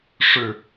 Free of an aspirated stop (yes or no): yes